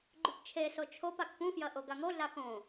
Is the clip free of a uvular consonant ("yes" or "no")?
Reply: yes